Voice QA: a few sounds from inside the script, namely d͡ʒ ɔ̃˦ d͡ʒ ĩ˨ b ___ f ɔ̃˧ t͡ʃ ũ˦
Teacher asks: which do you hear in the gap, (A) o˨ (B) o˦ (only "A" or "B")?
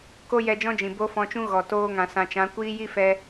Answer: B